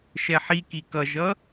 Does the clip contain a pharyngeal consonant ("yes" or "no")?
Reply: yes